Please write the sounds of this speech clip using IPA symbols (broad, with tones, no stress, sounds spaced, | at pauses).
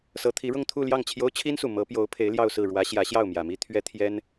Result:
s ɤ˧˥ t̪ʰ i˧˥ ɻ ʊ˥˧ ŋ t̪ʰ u˥˧ l j ɑ˥˩ ŋ t͡ɕʰ j o˥ ʊ̯ t͡ɕʰ i˥ n s u˨˩ m ɤ˧˥ p j o˧˥ ʊ̯ pʰ e˧˥ ɪ̯ l j ɑ˥˧ ʊ̯ s ɹ̩˥˩ ɻ w ä˧˥ ɕ j ä˧˥ ɕ j ɑ˥˩ ʊ̯ m j ä˨˩ m i˥ t̪ʰ ɥ ɛ˥ t̪ʰ j ɛ˥ n